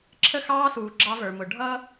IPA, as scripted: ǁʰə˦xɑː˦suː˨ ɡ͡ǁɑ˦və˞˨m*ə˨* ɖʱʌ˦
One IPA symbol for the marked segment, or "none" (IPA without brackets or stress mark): ʊ˨